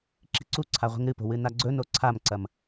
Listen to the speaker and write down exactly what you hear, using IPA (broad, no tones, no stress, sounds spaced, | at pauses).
ǁ i̤ ǀ u ǀʰ a ʁʷ i̤ ŋ ɾ ɨ p o̤ w ɨ n a ɡ͡ǀ ɵ n o ǀʰ a m ǀ ɐ m